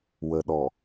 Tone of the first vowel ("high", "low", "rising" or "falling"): low